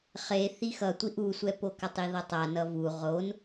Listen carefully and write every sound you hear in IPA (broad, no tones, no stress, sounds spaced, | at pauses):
χ e θ i x ʌ tʷ i ʔ u sʷ ɛ p o k a tˤ i ð ʌ tˤ a n ʌ v u ʁ o n